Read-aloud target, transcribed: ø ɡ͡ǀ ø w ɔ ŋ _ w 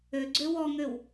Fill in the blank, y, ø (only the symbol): ø